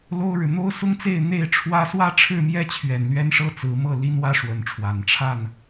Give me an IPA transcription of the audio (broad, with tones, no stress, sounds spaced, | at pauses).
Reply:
l o˦ ʊ̯ ɻ ɻ̩˨ n̪ o˦ ʊ̯ s ʊ˦ ŋ t͡s e˥˨ ɪ̯ n̪ e˥˨ ɪ̯ ʈ͡ʂʰ w ä˦ s w ä˦ ʈ͡ʂʰ ɻ̩˥˨ m j ɛ˥˨ t͡ɕʰ ɥ ɛ˨˩ n l ɥ ɛ˦ n ʂ ɤ˦ t͡s ɹ̩˨˦ m ɤ˥˨ l i˦ n w ä˦ ʂ w ə˨˦ n ʈ͡ʂʰ w a˨˩ n ʈ͡ʂʰ a˥˨ n